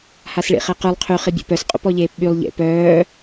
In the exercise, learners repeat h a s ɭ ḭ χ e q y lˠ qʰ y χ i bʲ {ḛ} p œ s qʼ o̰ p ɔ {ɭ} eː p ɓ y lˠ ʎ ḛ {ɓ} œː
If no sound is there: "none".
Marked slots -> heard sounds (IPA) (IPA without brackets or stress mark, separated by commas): ḛ, ʎ, p